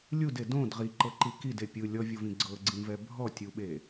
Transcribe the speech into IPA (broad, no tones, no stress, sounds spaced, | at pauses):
lʲ u d e d õ d ʁ i ǃ ɤ ǃ i k i d e pʲ ɯ lʲ ɔ vʲ o v ĩ ɡ͡ǀ ɤ ɡ͡ǀ ĩ v ɛ bʱ ɔ tʲ u ɓ e